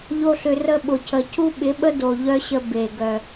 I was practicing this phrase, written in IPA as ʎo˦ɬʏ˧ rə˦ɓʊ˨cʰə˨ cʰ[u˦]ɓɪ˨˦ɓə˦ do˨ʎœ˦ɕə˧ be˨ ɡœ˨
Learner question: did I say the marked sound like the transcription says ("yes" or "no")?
yes